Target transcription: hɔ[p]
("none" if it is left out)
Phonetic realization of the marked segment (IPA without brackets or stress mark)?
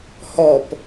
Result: p